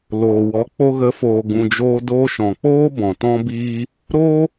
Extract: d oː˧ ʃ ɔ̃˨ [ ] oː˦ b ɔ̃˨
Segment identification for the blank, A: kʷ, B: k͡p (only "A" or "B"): B